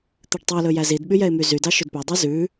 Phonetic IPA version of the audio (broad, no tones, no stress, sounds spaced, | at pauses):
t̪ ʉ ɖ tˤ u l ɵ j æ z i d ɓ y j ɛ ɪ̯ m y z y d ɑ ʃ ɵ d p ɵ dˤ ʉ z ʉ